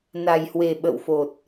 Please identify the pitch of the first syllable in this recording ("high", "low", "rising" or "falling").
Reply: low